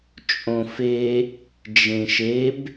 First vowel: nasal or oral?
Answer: nasal